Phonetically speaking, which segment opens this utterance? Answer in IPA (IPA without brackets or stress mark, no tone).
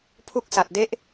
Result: pʰ